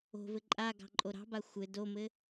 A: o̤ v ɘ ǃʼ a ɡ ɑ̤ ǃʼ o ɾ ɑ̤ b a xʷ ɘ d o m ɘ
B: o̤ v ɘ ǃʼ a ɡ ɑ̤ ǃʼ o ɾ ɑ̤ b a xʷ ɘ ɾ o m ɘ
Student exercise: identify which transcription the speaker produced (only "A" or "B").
A